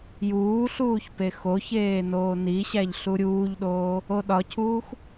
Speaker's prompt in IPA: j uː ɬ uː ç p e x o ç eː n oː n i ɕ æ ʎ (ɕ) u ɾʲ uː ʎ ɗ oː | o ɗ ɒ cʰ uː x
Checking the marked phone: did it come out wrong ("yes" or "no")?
yes